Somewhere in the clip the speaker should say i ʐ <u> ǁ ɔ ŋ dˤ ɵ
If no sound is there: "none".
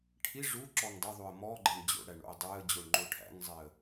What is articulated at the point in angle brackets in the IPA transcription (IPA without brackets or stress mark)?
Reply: u